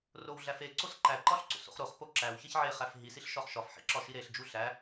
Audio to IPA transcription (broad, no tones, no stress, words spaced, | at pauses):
rowɮæfe ǀosǃæ ǃɒɬǀo̰so̰χɾoχ poǁæw çeçʕe χæfɦi siɬʃɒχʃɒf ħḭǁɒʃiɾeɬ d͡ʒuɬæ